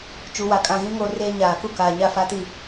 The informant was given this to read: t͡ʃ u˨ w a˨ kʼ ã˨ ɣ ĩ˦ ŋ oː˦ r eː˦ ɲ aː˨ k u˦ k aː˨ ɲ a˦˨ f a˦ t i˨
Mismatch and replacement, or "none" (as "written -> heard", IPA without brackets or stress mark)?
none